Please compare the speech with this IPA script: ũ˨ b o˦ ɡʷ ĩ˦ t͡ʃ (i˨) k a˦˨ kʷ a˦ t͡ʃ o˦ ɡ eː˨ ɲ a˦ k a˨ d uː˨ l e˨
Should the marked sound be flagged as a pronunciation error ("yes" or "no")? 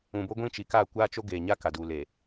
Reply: no